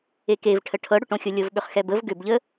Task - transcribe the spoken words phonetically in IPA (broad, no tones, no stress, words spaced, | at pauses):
ekevʈʰə ʈʰɤɽʏʈõxʲo lʲɤvɓʏχxɛbəv ɡʏbʎə